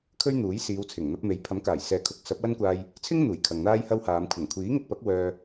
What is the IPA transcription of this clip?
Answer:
kʰ ɵ˥ ɥ n̪ uː˨˥ j s iː˨˧ w t͡sʰ ɪ˨˩ ŋ n̪ ɐ˧ p̚ m e˨˥ j pʰ ɐ˨˥ m k aː˨˩ j s ɛː˨ kʰ ʊ˨˥ k̚ s ɐ˨˥ p̚ w ɐ˥ n kʷ aː˧ j | t͡sʰ ɪ˥ ŋ n̪ uː˨˩ j kʰ ɐ˨ ŋ n̪ aː˥ j h ɐ˥ w h aː˨˧ m kʷʰ ɐ˨˩ ŋ kʷʰ iː˨˥ ŋ ɪ˧ k̚ p ɐ˨˥ k̚ w œː˧

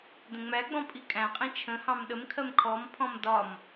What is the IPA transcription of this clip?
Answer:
d ə̃ ŋ͡m æ ɡ͡b ɔ̃ pʼ i kʼ æ̃ qʼ ĩ t͡ʃʰ ə̃ h ɑ̃ m ɗ ə m kʰ ɜ m kʰ ɔ m pʰ ɔ̃ m d ɒ m

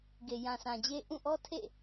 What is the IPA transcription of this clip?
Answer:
ɡ e˨ j ã˨ s ã˨ d͡ʑ e˦ ʔ ũ˦˨ ʔ ɔ˦ tʰ ḛ˦˨

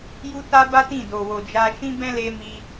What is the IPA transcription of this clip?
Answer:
j u˦ t a˦ b a˦ t ĩ˦˨ d o˨ w o˨ d͡ʒ a˧ ʃ ĩ˦ b ɛ̃˦ l e˧ m i˧

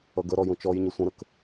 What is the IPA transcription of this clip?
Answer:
ʌ ɡ ə ɾ ɔ j ũ t͡ʃ ɔ j ɲ ə sʷ ə̃ ɾ ə k

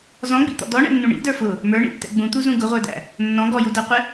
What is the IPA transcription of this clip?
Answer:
z ɔ̃ ɡ͡b ḭ t̪ ɔ̰ d ɔ ɳ ɛ̰ nː ũ ɳ ḭ d ə˞ f ʊ | m ə˞ ɳ ḭ tː ɛ̰ ɡ͡b ũ t̪ u z ũ ɡ ʊ ʁʷ ə˞ d æ̰ | nː ɔ̃ ɡ ɔ j u d æ qʷ ɪ

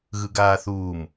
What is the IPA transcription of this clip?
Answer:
ɣ ɯ ɡ aː θ uː m

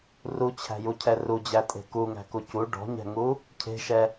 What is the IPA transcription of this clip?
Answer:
r u t͡ɕʰ æ̤ j u cʰ ɛ r u d͡ʑ æ tʼ e̤ k u ŋ æ̤ k u c u ɖ ɔ̤ ɲ ɛ̤ ŋ u | cʰ e̤ ʃ ɛ

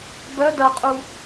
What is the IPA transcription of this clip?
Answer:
b œ d ɐ qʼ u

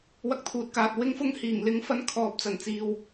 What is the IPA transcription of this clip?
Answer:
w ɐ˧ k̚ t̪ʰ uː˨ t̚ k aː˨ t̚ w ɪ˧ ŋ f ʊ˧ ŋ h iː˨˩ ŋ l ɪ˨˥ ŋ f ɐ˨˧ n kʰ ɔː˨ p̚ t͡s ɐ˨˩ n t͡s iː˨ w

